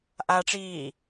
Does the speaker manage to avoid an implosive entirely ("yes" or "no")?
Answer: yes